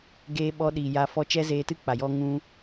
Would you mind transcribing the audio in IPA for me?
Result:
ɡ eː˦ ɓ ɔ˦ ɗ iː˨ j a˧ f ɔ˧ t͡ʃ ɛ˦ z eː˧ t ɨ˦ k͡p a˨ j ɔ˦ ŋ ũ˦

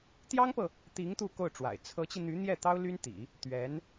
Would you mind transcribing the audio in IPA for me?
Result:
t̪ j ɑ˥ ŋ p ɤ˨ | t̪ i˧˥ ŋ t̪ u˥˧ k o˥˩ ʊ̯ ʈ͡ʂ w a̰˨˩ ɪ̯ t͡sʰ ɤ˧˥ t͡ɕ i˧ n̪ y˧˥ n̪ j ɛ˥˩ t̪ ɑ˥ ʊ̯ l y˥ n t̪ ḭ˨˩˦ | t̪ ɥ ɛ˧˥ n

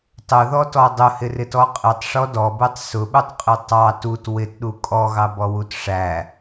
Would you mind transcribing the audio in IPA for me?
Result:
tˤ ʊ ð ɔ t ɔ dˤ ʊ h ɪ r ɪ t ɔ qʼ ɪ tˤ ʂ ɔ d ɔ b u tˤ s ʊ ɓ u tˤ qʼ ɪ tˤ ɑ t u t w ɪ t ɗ u kʼ ɔ ɣ ɑ b ɔ w u t ʂ æ

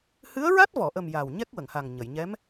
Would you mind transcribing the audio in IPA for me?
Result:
h ɨ˧˥ ə̯ ɹ a˦˥ t̚ v ɔ˨˩˨ ʔ ə˨˩ m j a˨˩ w ɲ ɛ˦˥ k̚ w ə˨˩˨ ŋ h a˨˩ ŋ ɲ ə˨˩˨ j ɲ ɛ˧˥ m

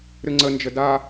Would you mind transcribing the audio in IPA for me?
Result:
ɾ ɨ ŋ͡ǀ ə n d͡ʒ ə d a

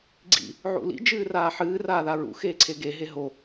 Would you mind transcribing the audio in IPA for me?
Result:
ɡ͡ǀ ḭ | ʕ ṵ l ḭ d͡ʒ ɨː r aː ħ ɨː r aː ð a ɹ ṵ x eː ǀʰ e ɡ e ɦ e ɦ o

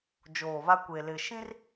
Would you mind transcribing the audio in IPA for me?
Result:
d͡ʒ oː˨ β a˦ kʷ e˨ l ɪ˨ ʃ ĩ˦ r

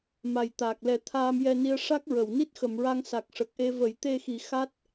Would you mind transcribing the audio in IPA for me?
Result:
m a˨˩ j t̪ aː˨˩ k̚ l ɛ˨˩˦ t̪ʰ aː˧ m j ɛ˧ n i˧ ə̯ ʂ a˦˥ k̚ ɹ ə˨˩˨ w n i˦˥ t̚ x ə˨˩˨ m ɹ a˧ ŋ s a˨˩ k̚ ʂ ə˨˩ k̚ ʔ e˧ v ə˨˩˦ j t̪ e˧ x i˨˩˦ x a˦˥ t̚

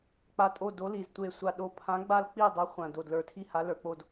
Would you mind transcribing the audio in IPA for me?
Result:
k͡p a˨˩ tʼ o˦˨ d o˨˦ l i˨˩ z tʷ e˨˩ sʷ a˨˩ ɗ o˨˦ pʰ ã˨˦ ɡ͡b a˦˨ l k͡p i˦˨ dˤ ɛ˨˦ χʷ ã˨˩ d o˨˩ d l ə˞˨˩ tʰ i˦˨ h a˨˦ l ə˞˨˩ k͡p o˦˨ d

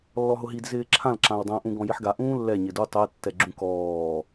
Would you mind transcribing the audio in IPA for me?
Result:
lː ɔ ɦ ʊ ɦ i d z ɪː ǁʰ ã l ǁ ã w dˤ ã ʔ ũ ɡ ɔ̃ j i ħ ɡ a ʔ ũː lː ɛ ɲ ɪ d u tˤ ɛ tː ɛ ɡ͡ǁ ũ k ɔː

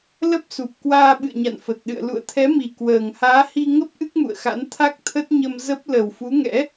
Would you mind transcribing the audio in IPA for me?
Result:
l ə˦˥ p̚ s u˨˩ p̚ k w aː˧ ɓ ɨ̰˧˨ ə̯ ɲ a̰˧˨ n f ə˨˩ t̚ ɗ ɨ̰˧˨ ə̯ l ṵ˧˨ ə̯ t̪ʰ ɛ˨˦ m i˨˩ k w əː˨˩ ŋ h aː˨˦ h i˧ ŋ ə˦˥ p̚ ʔ ɨ˦˥ k̚ m ṵ˧˨ ə̯ x a̰˧˥ n t̪ʰ a˦˥ k̚ t̪ʰ ə˦˥ t̚ ɲ ə˧ m z ə˦˥ p̚ l ə˨˩ w f u˨˦ ŋ ɛ̰˧˥

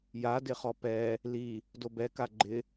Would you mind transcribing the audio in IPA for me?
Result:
j a d ɪ χ ɔ p ɛ | l i | d o b ɛ k a ɡ͡ǃ ɪ

